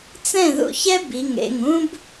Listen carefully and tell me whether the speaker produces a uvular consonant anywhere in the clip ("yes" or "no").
no